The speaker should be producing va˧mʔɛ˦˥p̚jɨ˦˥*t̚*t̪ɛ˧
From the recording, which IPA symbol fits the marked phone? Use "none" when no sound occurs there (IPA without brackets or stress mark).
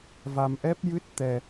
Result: t̚